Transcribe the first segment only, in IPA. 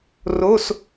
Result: r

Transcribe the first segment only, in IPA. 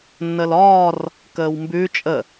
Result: nː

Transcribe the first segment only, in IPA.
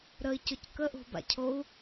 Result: ɾ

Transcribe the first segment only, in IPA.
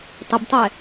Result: tˤ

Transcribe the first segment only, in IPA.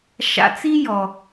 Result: ʃ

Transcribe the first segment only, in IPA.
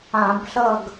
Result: ã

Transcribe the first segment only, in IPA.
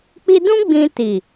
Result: k͡p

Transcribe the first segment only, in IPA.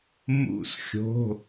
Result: m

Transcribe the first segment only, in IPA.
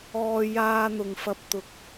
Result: ɔː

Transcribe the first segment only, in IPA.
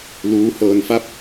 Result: l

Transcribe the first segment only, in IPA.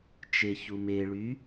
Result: t͡ʃ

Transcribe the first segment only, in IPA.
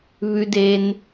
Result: β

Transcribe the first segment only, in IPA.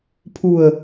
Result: pʰ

